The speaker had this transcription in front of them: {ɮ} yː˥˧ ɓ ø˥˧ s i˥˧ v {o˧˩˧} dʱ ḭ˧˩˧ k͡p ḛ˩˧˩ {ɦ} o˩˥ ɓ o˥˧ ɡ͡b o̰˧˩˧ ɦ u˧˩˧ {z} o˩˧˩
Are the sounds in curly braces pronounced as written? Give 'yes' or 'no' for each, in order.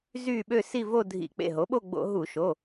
no, no, yes, no

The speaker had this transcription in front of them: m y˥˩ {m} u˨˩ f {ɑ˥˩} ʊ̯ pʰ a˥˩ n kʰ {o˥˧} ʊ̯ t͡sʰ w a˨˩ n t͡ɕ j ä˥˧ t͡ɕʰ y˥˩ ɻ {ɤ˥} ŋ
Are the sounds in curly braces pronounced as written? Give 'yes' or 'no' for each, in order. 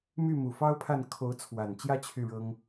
yes, no, no, yes

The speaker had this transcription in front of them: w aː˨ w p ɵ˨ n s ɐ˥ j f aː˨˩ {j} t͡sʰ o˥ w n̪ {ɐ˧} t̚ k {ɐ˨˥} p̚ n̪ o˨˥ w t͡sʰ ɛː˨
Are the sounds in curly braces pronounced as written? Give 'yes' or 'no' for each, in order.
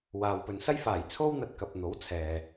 yes, yes, no

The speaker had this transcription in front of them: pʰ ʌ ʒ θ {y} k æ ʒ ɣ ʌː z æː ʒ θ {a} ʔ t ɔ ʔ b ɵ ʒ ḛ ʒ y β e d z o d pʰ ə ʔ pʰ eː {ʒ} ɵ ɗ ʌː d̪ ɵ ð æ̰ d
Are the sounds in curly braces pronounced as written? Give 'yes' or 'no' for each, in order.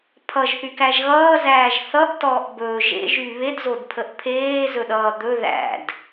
yes, no, no

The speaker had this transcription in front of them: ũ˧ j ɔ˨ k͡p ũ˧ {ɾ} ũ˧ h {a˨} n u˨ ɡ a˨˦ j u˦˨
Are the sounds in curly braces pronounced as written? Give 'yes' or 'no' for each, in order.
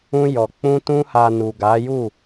no, yes

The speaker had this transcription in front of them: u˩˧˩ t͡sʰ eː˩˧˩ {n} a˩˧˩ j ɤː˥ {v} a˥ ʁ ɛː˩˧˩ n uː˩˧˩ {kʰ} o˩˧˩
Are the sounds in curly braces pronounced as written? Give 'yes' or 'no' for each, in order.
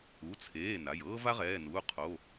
yes, yes, no

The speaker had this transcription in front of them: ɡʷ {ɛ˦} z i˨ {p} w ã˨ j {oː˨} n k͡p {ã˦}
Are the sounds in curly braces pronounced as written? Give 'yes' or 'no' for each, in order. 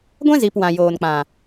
no, yes, yes, no

